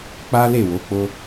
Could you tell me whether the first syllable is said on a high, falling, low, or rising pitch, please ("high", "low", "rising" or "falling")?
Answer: high